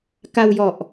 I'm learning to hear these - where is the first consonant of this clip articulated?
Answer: velum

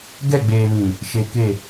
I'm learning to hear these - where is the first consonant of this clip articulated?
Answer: velum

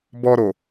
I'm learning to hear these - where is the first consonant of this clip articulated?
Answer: lips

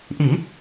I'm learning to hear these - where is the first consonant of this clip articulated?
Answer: throat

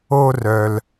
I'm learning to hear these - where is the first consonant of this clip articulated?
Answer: tongue tip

